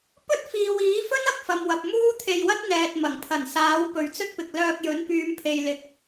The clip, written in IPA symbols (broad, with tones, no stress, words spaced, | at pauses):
pɵ˥t̚fiː˨wiː˨˥fɵ˥n ɐ˨k̚fɐ˨mwɐ˨p̚ muː˥t̪ʰe˧jwɐ˥t̚ n̪ɛː˨t̚mɐ˨˩ŋpʰɐ˨˩nsaː˨˥w pɵ˨ɥt͡sɵ˥t̚pɪ˨k̚ lœː˧k̚jɵ˨˥n pyː˨˧mpʰe˨jlɪ˨k̚